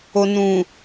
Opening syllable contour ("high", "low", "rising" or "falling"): low